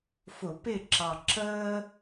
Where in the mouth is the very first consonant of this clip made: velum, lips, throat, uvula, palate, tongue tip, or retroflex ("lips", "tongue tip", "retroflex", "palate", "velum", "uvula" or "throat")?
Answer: lips